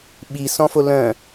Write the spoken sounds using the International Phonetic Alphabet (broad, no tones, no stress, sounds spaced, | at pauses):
ɓ i s ɔ̃ f o l œ̃